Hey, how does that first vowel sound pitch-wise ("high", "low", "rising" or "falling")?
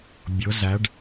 rising